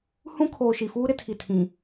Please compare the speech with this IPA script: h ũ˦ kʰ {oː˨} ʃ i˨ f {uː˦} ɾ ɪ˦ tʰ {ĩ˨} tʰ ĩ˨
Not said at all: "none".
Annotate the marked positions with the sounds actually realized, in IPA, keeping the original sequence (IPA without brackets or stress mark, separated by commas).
oː˨, uː˦, i˨